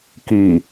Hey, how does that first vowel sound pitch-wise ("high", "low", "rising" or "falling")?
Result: low